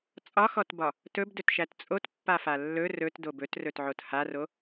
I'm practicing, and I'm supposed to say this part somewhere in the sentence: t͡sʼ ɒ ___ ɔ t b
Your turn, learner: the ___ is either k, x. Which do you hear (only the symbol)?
x